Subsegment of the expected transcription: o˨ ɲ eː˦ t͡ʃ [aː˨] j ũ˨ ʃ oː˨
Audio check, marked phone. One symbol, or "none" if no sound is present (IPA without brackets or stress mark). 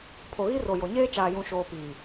aː˨